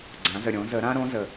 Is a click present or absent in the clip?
present